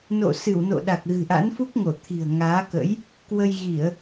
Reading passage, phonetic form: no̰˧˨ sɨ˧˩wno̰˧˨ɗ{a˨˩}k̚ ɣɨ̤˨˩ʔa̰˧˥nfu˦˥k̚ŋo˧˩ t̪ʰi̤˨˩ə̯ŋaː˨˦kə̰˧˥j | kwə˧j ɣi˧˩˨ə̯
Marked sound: correct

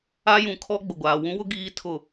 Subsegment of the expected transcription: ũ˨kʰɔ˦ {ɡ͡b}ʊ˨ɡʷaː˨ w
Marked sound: correct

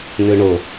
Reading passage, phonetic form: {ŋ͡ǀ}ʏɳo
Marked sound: incorrect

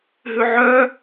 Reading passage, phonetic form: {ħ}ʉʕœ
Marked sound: incorrect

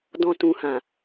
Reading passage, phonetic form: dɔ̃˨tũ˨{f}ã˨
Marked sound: incorrect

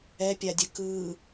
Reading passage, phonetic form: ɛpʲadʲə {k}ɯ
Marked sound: correct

